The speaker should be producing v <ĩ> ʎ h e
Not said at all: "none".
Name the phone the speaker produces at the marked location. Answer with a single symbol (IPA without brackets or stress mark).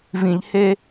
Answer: ĩ